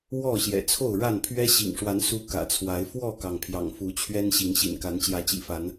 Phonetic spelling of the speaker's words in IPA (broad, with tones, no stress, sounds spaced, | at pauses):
w ɔ˥˨ ɕ j ɛ̰˨˩ t͡sʰ o˥˨ ʊ̯ ɻ a˥˨ n pʰ ɥ ɛ˦ ɕ ḭ˨˩ ŋ ʂ w a˨˦ n s u˦ k ä̰˨˩ t͡sʰ w a˨˦ ɪ̯ f w ɔ˥˨ k ɑ˩ ŋ pʰ j ɑ̰˨˩ ŋ f u˨˦ t͡ɕʰ ɥ ɛ˦ n ɕ i˨˦ ŋ ɕ ḭ˨˩ n k a˨˦ n t͡ɕ j ä˨˦ t͡ɕ ḭ˨˩ f a˨˦ n